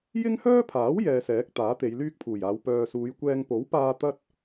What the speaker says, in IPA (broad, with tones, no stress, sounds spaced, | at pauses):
j ɪ˥ ŋ h œː˥ pʰ aː˨˥ w j ɛː˧ s ɛː˨˥ k̚ t̪ aː˨˥ t̪ e˨˧ j l yː˥ k̚ pʰ uː˨˩ j aː˨˧ w p œː˨ s uː˨˧ j kʷ ɛː˧ ŋ p o˨˥ w p aː˧ t̪ ɐ˥ t̚